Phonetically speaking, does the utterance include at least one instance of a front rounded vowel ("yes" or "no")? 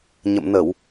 no